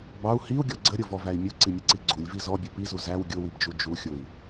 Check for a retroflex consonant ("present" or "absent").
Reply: absent